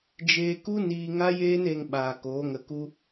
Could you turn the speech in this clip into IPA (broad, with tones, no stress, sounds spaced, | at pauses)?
d͡ʒ eː˧ k u˦ n iː˧ ŋ a˦ j eː˦ n e˧ ŋ ɓ aː˨ k oː˨˦ ŋ ə˧ k u˦